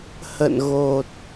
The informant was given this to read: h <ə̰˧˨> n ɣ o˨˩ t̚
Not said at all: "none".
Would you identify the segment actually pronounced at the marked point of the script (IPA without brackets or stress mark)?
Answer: ə̰˧˨